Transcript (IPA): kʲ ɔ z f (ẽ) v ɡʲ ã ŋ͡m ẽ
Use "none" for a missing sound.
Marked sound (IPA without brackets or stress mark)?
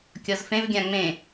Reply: ẽ